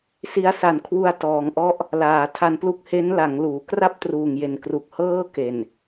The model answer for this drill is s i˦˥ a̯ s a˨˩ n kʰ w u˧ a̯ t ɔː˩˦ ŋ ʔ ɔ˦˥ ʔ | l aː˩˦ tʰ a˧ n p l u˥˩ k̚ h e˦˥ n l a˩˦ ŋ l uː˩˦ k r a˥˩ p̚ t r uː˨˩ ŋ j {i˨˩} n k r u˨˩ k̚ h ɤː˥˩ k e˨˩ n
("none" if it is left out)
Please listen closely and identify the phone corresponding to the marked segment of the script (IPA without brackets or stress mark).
e˨˩